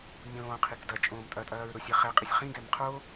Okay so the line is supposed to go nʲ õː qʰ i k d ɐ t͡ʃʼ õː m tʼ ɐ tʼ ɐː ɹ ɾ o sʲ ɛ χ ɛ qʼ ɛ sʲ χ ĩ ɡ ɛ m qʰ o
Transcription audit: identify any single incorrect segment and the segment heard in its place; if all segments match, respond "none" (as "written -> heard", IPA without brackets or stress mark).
none